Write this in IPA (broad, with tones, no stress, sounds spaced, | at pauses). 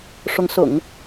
ʂ ʊ˧˥ ŋ s ʊ̰˨˩˦ ŋ